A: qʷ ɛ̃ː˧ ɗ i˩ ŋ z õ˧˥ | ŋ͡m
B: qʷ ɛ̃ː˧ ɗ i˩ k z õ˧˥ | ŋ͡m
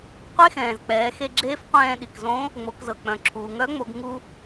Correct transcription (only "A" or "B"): B